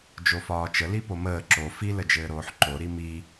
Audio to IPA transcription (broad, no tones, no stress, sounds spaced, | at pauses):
d͡ʒ o f ɒː t͡ʃ ə l i p o m əː ǁ o f i l ə d͡ʒ ɘː ɾ oː ħ ǃ o ɾ i m i